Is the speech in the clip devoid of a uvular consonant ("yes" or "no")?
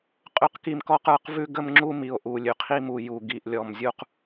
no